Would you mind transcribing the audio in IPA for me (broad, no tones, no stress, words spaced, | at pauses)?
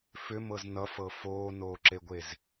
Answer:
fʏmɤz nʌfɤ foːnoːǁeɡʷez